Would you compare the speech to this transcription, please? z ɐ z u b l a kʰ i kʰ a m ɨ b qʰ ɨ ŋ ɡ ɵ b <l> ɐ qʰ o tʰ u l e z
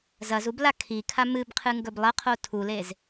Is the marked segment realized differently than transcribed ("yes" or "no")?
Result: yes